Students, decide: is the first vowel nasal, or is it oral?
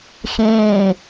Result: nasal